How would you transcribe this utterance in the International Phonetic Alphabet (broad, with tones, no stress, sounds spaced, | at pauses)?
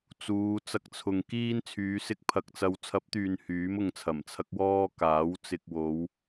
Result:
t͡s uː˨˧ t͡s ɐ˧ k̚ t͡sʰ ʊ˨ ŋ k iː˥ n t͡sʰ yː˨˧ s ɪ˥ k̚ pʰ ɐ˧ k̚ t͡s ɐ˧ w t͡sʰ ɐ˨˥ p̚ t̪ yː˨ n h yː˨˥ m ʊ˧ ŋ t͡sʰ ɐ˨˩ m t͡sʰ ɐ˥ k̚ w ɔː˥ k aː˨˥ w t͡s ɪ˧ k̚ w o˨˧ w